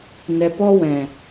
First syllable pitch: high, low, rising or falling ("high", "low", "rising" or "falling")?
low